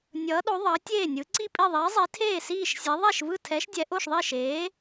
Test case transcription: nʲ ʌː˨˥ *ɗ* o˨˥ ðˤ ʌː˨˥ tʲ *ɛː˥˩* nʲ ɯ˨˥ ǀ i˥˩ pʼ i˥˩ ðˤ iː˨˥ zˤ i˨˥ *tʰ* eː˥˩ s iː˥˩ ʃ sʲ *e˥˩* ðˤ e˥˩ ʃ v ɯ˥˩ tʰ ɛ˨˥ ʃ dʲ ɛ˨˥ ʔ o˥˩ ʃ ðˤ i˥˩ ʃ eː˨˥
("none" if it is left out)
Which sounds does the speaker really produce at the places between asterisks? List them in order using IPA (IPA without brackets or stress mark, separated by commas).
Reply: ɗ, eː˥˩, tʰ, e˨˥